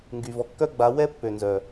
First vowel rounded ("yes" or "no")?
yes